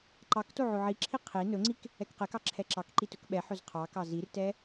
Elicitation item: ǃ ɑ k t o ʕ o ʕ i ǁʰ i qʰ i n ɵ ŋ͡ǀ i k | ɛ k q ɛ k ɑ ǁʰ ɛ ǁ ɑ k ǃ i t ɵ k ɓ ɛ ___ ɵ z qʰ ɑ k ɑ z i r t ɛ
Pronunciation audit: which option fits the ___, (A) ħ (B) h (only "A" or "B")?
A